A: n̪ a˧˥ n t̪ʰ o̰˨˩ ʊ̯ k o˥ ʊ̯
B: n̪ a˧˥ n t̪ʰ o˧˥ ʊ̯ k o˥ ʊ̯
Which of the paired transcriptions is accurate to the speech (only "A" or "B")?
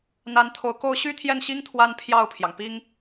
B